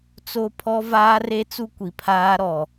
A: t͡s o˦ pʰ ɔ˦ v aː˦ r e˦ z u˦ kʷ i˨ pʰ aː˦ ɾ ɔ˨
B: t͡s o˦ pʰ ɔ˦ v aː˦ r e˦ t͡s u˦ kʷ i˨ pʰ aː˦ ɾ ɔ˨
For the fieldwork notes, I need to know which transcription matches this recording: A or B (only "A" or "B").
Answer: B